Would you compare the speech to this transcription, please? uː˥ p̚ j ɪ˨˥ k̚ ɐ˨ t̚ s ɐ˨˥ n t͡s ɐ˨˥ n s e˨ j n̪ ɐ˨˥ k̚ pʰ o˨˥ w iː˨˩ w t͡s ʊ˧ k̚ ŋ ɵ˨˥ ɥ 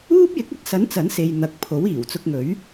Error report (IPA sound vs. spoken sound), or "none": none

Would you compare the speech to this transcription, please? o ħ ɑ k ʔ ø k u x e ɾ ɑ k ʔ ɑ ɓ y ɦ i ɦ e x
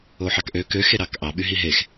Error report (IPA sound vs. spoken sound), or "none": u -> ø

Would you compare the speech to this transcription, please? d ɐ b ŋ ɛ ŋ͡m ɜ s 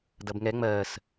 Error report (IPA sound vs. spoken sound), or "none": none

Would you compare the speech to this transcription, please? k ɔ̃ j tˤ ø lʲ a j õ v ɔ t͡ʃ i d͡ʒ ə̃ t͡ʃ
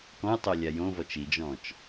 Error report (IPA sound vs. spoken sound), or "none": ə̃ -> ɔ̃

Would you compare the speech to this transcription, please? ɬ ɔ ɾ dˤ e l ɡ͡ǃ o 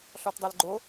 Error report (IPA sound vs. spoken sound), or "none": ɾ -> t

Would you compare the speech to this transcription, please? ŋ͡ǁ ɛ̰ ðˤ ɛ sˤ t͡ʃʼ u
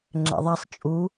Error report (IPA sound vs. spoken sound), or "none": none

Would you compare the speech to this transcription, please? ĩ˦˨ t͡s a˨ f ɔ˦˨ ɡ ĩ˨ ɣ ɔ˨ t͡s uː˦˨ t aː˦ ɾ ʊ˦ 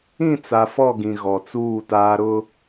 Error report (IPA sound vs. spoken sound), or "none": none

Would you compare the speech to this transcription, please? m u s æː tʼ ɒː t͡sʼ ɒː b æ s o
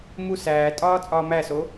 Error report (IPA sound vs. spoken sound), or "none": b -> m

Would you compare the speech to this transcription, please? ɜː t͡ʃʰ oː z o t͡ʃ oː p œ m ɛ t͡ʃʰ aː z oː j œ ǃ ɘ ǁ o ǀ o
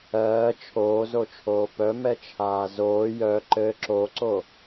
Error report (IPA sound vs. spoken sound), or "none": t͡ʃ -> t͡ʃʰ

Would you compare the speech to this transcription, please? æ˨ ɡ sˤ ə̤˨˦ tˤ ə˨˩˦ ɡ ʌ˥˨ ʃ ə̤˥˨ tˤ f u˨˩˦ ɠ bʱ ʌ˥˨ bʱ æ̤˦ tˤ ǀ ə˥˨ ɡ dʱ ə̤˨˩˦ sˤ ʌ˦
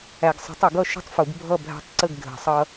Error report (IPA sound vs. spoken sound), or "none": ɠ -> ɡ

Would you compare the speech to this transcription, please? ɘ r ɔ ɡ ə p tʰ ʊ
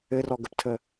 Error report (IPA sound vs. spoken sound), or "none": ʊ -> ə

